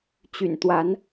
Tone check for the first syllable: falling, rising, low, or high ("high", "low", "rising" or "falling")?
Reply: low